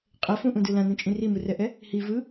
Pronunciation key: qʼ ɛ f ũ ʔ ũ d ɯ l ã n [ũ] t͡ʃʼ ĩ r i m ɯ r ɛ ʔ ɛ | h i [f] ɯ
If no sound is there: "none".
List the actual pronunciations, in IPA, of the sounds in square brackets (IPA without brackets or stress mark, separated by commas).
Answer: ũ, v